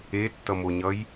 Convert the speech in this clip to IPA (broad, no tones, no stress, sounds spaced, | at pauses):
e tː ʌ m o ɲ ʌ j